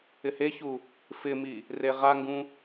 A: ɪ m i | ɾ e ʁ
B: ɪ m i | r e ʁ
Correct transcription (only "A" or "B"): B